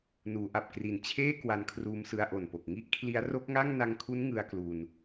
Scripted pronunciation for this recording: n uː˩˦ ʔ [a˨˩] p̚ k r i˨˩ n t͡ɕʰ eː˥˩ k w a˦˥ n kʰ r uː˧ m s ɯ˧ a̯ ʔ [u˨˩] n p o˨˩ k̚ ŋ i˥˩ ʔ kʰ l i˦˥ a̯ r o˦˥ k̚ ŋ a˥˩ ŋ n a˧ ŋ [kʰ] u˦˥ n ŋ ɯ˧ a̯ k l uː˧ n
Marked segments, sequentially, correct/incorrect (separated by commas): correct, incorrect, correct